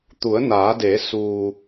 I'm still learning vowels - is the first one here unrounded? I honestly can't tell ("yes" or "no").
no